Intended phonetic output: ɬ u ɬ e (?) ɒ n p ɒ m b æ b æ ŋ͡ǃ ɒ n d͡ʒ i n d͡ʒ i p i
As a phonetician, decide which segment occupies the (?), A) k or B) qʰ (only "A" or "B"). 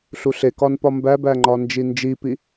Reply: A